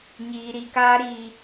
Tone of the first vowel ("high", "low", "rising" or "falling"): low